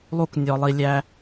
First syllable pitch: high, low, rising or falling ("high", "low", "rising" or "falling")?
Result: high